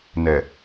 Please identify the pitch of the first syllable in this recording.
low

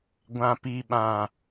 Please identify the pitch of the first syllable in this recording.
low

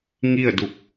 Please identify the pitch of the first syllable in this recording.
falling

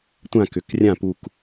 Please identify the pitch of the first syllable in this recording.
falling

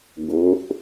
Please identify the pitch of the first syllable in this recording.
rising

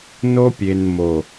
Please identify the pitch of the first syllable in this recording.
high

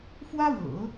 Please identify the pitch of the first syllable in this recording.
high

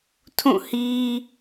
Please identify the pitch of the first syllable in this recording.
falling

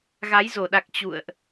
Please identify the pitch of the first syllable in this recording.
rising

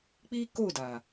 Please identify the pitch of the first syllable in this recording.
high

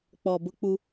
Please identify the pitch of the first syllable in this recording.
low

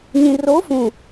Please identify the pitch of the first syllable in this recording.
low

